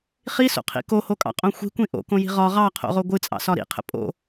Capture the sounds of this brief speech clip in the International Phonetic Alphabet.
χ i s o̰ qʰ ḭ k o h o kʼ ɑ̰ qʼ õ xʷ i̤ kʷ ĩ ʔ o̰ k õ j i̤ ʁ ɒ ʁ ɑ qʰ o̰ ʁ o ɡʷ ɨ t͡sʼ ɑ̰ s ɒ ɾ ḭ qʰ ə̰ pʼ o̰

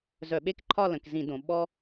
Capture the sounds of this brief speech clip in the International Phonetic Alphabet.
z œ˧˩˧ ɓ e˦ k ǃʰ ɒ˦˨ l ə̃˩˧ k z ĩ˧˩˧ d õ˩˧ ɓ ɔ˦

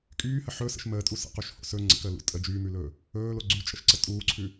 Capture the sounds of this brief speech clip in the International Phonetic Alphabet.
kʼ yː h ə ħ ɵ s ə̰ ʃ m əː tʼ u s ə̰ q u ʃ h o̰ s ɵ ŋ͡ǀ ə̰ k əː l ṵ tʼ ə d͡ʒ yː m ʉ l ɵː | ɵː l o ɡ͡ǀ y t͡ʃʼ ə ʃ ǀ ə tʼ uː ǀʰ ʉ

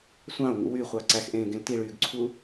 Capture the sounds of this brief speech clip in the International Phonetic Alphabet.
sʷ ɑ̃ o̯ ŋ ṵ w y χʷ ɑ ǀ æ x ʔ ẽː ɡ ẽ l t i ɭ yː ɡ ǀʰ u

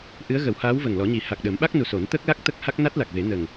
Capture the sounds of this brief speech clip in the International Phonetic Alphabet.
ʔ ɨ˧˥ ə̯ ɣ ə˨˩˦ w h aː˧˥ w v ə˨˩ ŋ l ɔ˨˩˦ ɲ i˨˩˦ h a˨˩ k̚ ɗ ə˨˩˦ m ɓ a˦˥ k̚ n u˨˩ s o˨˩˦ n t̪ ə˦˥ k̚ l a˦˥ k̚ t̪ ə˦˥ k̚ h a˦˥ k̚ n a˦˥ t̚ l a˨˩ k̚ v e˨˩˦ n ə˨˩ ŋ

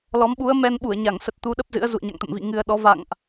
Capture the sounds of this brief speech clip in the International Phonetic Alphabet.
l ɔ˨˦ m ɓ u˨˦ ə̯ m ɛ˧ n ɓ u˧˩ ə̯ ɲ a˧˩ ŋ s ə˨˩ t̚ t̪ u˨˦ ɗ ə˦˥ p̚ z ɨ̰˧˥ ə̯ z ṵ˧˨ ə̯ ɲ a̰˧˨ ŋ t̪ ə̰˧˨ m v ḭ˧˨ ŋ ɨ˨˩ ə̯ ɗ ɔ˨˦ v a̰˧˨ ŋ ʔ

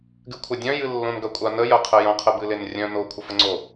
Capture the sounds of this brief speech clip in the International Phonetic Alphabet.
ɡ ɨ kʷʰ ɐ dʲ œ̃ j ɨ lː õ n ɡ ɐ kʷʼ a n ə j ɐ qʰ ə j ɐ̃ qʰ ə b ɨ l e n rʲ œ̃ n o kʷʰ ə f ə ŋ͡ǀ o

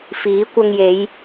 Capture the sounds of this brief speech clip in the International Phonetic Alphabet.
f iː˨˥ kʷ ɐ˧ ŋ j e˨˧ j

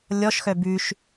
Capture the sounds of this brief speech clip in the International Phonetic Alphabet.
lʲ ɔ ʃ x œ b ʉ ʃ

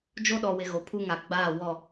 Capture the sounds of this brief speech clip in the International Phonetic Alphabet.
d͡ʒ o˦ ɗ ɔ˨ w ɪ˨ ɣ o˨ pʰ u˦ ŋ a˨ ɡ͡b aː˦˨ w ɔ˦˨

